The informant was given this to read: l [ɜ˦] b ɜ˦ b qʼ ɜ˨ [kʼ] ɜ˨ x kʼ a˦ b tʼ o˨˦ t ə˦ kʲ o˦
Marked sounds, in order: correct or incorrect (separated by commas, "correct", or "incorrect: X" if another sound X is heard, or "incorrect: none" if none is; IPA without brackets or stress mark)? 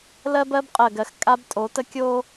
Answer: correct, incorrect: ɡ